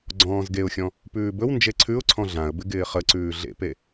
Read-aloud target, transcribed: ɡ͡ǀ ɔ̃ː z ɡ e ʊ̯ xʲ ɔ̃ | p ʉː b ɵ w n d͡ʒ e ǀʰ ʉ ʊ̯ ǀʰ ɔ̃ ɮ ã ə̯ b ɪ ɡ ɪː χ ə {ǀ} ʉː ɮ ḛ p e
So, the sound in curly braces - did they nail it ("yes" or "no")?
yes